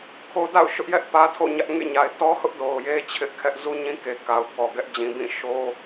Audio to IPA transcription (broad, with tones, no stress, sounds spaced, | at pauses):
kʰ o˦ d a̰˦˨ ʊ̯ ʃ ʊ˦ ʔ j ɛ˦ ʔ p ä˦ tʰ o̰˦˨ ɲ ä˦ ʔ ŋ ḛ˦˨ ɲ a˨ ɪ̯ t ɔ˦ h ʊ˦ ʔ d o˨ ʊ̯ j e˦ t͡ɕʰ ɪ˦ ʔ kʰ ɛ˦ ʔ z u˦ ɲ ĩ˦ k e˨ k a˨ ʊ̯ k ɔ˨ ɡ ɛ˦ ʔ d͡ʑ ĩ˨ b ĩ˦˨ ʃ o˦